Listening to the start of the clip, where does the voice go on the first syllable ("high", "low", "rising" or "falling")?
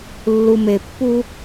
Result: low